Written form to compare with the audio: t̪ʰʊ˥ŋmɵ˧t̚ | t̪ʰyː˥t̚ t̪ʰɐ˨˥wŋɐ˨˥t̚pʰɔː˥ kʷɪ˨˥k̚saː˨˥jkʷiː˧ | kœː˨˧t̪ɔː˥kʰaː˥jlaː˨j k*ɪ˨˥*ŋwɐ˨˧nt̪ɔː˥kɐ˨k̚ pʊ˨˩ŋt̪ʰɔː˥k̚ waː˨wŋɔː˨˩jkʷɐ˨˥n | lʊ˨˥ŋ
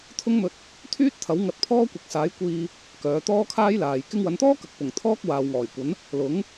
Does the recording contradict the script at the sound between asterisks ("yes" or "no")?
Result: yes